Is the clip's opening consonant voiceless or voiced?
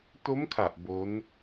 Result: voiceless